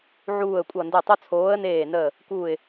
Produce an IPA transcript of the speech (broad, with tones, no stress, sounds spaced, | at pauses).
ʕ uː˧˩ ə̯ kʷʼ ʌ˧˩ n d ɘ˧˩ tˤ o˦ t͡sʰ oː˨˦ ə̯ n eː˧˩ n əː˧˩ | k uː˧˩ ɪ̯